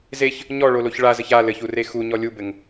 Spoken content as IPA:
z e ç | ɲ ɔ ɭ o l o ç ɭ a z ɘ ç a l ɘ ç u r e x u ɲ ɔ lʲ u b ɘ ŋ

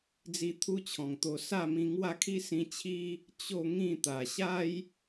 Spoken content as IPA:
d͡z i˧ t̪ʰ u˦ t͡ɕʰ ɔ̃˨˩ ŋ t̪ o˧ s a˥˧ m ĩ˧ ŋ w a˥˧ kʰ i˦ s ĩ˧ t͡ɕʰ i˦ | t͡ɕ o˥˧ ŋ ĩ˥˧ t̪ a˨˩ ɕ a˦ j

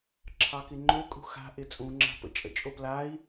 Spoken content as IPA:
ǁʰ ɑ k ɪ ŋ͡ǃ ø kʼ ṳ x a̤ ʔ ɪ t͡sʼ ũ ŋ͡ǁ a̤ p ə̰ t͡ʃʼ ə̰ t͡ʃʼ o p l a i̯

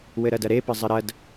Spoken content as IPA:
w ɘ ɾ ɐ d ɐ ɾ e p ɘ zˤ ɘ ɾ ɐ d

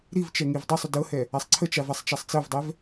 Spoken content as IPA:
ɾ i v t͡ʃ ɛ ŋ i v dˤ i sˤ ʏ d ɤ h ɛ | a sˤ ǀʰ ə t͡ʃ a v a sˤ t͡ʃ a sˤ t͡s ɤ v dˤ ɛ v

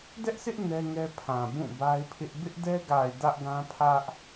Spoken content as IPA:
d ɛ˦ ʔ sʰ ɪ˦ ʔ n ɛ˦ ŋ ɛ˦ pʰ ã˨ b ũ˦˨ b a˦ ɪ̯ pʰ ɪ˦ ʔ b ɪ˦ ʔ d ɛ˦ ɡ a˨ ɪ̯ d ä˦ ʔ ɡ ã˦ pʰ ä˦ ʔ

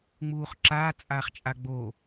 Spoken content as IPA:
ŋ͡m uː χ ǁ aː t͡sʼ aː χ t͡ʃʼ a ɡ͡b o

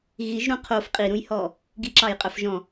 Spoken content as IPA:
ɣ i ʒ ɾ ũ qʰ o f qʼ i ɾ ũ j h ɔ | ɡ i ǁ ɑ j qʼ œ f ʒ ɔ̃

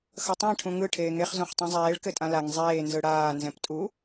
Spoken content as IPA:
x ʌ tˤ ã ʈʰ ũ ŋ ɯ ʈʰ eː ŋ e χ z õ χ tˤ ɛ̃ zˤ eː ɭ k ɘ tʼ ã l a ŋ zˤ eː n z ɯ ɽ aː n z ɛ̃ p tʼ u

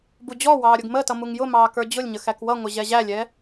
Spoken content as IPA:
b u d͡ʑ ɔ w ɑː ɾʲ ʊ ɡ m ə t ʌ m u ŋ j ʊ m ɑː k ə˞ d͡ʑ ʊ lʲ ɲ ə x æ k w ʌ ŋʷ ɪ ʑ ɛ ʑ æ lʲ ɛ

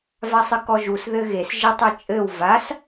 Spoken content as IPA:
v a sˤ ɨ k ɔ ʒ u s ð ɘ ɣ e s ʒ i tˤ ɘ t͡ʃʼ ɘ w v a s

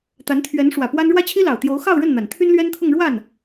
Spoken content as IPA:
t̪ a˧˥ n t̪ʰ ɥ ɛ˧˥ n ʂ w ä˨˩ p w a˥ n ɻ w ä˥ t͡ɕʰ i˥ l ɑ˨˩ ʊ̯ t̪ j o˧˥ ʊ̯ x ɑ˥˧ ʊ̯ ɻ ə˥˩ n n̪ a˨˩ n t̪ʰ y˥ n l ɥ ɛ˥ n t̪ʰ ʊ˥˧ ŋ ɻ w a˥˩ n

